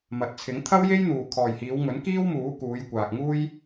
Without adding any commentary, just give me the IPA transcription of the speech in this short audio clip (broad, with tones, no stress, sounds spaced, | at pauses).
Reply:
m ɐ˨ t̚ t͡sʰ ɪ˨˥ ŋ t̪ʰ ɐ˥ w j e˥ j n̪ uː˨ kʰ ɔː˨ j h iː˨˧ w ŋ ɵ˨˥ n k iː˥ w m uː˨˥ k uː˨˧ j kʷ aː˨ k̚ ŋ uː˥ j